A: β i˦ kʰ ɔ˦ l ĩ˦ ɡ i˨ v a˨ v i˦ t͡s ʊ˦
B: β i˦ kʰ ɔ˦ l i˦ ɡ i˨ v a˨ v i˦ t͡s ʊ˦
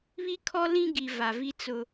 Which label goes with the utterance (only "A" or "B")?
A